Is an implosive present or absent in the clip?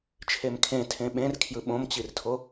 present